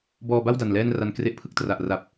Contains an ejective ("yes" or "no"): no